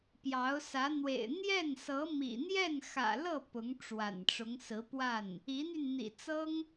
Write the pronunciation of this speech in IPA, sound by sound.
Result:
pjɑ˧˥ʊ̯sä˧˥ n̪wḛ˨˩ɪ̯ n̪jɛ˥˩nsɤ˧˥ mḭ˨˩n̪jɛ˥˩nxä̰˨˩lɤ˥˩ pʊ˧˥ŋ ʈ͡ʂwa̰˨˩nʈ͡ʂʊ˧˥ŋsɹ̩˧˥pwa˥˩n | i˧˥n̪y˧n n̪ḭ˨˩t͡sɤ˥ŋ

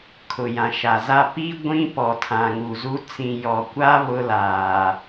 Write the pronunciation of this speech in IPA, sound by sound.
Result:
kʰʊ˨jã˨ʃa˨za˦ pi˦ ɡʷĩ˦ pɔ˨tʰã˨ŋu˨zu˦ t͡sĩ˨jɔ˨kʷa˦ βʊ˦laː˨

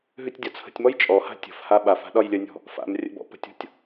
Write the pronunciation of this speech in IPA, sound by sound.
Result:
ɦʉtʲdʲɒt͡sʰə̤tʲmɔj t͡ʃʼɔha̤ tʲə̤fha ɓaf a̤ɗɒjlʲənʲɔ̤ | fa̰m rʲə̰bɔ̰ pə̤tʲɔ̤tʲ

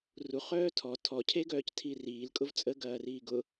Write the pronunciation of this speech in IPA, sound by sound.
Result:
ruχœː tʰɔ tʰɔcʰeɡœːc tʰiriːlkʼʊv t͡sʼəɡɐːriː ɡʊ

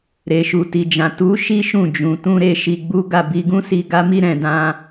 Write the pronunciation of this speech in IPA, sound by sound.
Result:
ɾe˨ʃu˨ti˨d͡ʒã˨ tu˨˦ ʃi˦ʃũ˦˨ d͡ʒũ˨tũ˧ɾe˧ ʃi˧ɡ͡bu˦ ɡa˦˨bi˧ɡũ˦si˧ ɡa˦mi˦ ɾɛ̃˧dã˦

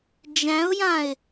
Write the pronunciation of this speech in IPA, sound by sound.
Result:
d͡ʒæ̃ʊ̯jãɪ̯

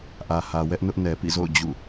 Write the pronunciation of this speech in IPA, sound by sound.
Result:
ʔä˨hä˨ wɛ˦ʔnʊ˦ʔ nɛ˨pḭ˦˨zo̰˦˨ʊ̯ d͡ʑṵ˦˨

